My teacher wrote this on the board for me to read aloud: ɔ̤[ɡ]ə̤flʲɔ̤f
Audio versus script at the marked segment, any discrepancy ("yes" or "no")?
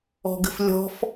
no